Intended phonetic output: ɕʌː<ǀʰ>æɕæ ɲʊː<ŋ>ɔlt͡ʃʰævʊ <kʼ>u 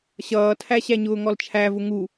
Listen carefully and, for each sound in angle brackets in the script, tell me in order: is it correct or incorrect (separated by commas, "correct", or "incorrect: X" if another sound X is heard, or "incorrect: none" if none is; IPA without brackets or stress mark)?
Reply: incorrect: tʰ, correct, incorrect: ŋ